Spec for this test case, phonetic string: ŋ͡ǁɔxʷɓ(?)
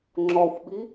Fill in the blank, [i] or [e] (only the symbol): i